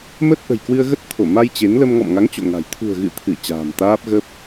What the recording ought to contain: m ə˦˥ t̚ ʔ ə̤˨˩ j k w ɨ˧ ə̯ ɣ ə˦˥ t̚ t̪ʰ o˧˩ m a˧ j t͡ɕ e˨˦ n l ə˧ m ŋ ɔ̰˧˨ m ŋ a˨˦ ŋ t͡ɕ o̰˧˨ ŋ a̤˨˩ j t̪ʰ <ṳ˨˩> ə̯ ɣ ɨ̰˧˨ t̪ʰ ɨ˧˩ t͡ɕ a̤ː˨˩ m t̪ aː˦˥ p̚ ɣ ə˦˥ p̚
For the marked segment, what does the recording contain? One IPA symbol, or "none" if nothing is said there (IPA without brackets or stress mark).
ṳ˨˩